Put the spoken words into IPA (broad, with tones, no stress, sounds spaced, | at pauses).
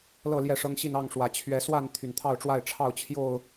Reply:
l ɤ˥˨ l j ɛ˥˨ ʂ ɤ˦ ŋ ɕ i˥˨ n ɑ˥˨ ŋ ʂ w ä˨˩ t͡ɕʰ ɥ ɛ˨˦ s w a˥˨ n t̪ʰ y˨˩ n t̪ʰ ɑ˥˨ ʊ̯ ʈ͡ʂ w a˥˨ ɪ̯ ʈ͡ʂʰ ɑ˥˨ ʊ̯ t͡ɕʰ j o˥˨ ʊ̯